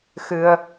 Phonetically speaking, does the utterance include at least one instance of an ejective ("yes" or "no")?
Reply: no